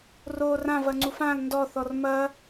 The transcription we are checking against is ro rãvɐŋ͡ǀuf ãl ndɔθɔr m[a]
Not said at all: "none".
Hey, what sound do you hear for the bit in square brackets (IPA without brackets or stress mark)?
ɐ